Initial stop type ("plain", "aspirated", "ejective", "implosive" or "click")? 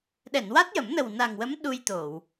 implosive